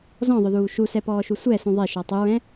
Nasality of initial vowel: nasal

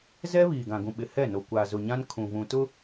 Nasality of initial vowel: oral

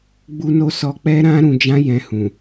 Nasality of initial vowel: oral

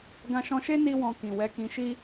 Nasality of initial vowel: nasal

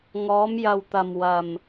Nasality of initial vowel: oral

